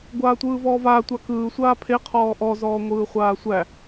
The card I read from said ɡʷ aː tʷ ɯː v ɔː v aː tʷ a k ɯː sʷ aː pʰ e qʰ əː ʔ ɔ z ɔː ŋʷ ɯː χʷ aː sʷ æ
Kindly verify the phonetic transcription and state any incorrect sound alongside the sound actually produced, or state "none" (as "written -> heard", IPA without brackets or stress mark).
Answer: əː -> ɔː